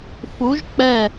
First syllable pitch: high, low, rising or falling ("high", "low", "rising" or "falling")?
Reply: rising